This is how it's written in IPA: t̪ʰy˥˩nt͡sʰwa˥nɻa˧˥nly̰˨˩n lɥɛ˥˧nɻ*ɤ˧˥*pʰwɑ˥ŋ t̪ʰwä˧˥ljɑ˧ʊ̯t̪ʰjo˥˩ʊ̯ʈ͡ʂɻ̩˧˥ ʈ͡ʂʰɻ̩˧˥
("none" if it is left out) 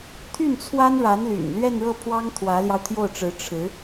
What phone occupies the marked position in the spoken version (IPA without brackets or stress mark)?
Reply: ɤ˥˩